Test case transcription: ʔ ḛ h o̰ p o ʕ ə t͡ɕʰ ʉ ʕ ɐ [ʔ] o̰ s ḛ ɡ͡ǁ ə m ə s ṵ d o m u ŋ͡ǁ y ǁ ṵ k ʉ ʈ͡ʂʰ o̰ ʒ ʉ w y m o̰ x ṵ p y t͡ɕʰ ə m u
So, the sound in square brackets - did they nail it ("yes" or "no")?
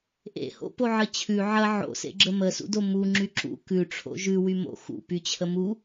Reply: no